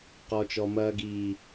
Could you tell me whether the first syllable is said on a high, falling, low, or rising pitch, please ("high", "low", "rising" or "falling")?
low